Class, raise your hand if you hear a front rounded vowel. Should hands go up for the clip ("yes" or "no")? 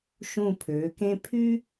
yes